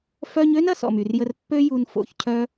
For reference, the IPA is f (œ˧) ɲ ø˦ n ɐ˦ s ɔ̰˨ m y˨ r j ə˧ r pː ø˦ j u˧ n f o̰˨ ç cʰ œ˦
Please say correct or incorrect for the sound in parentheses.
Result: correct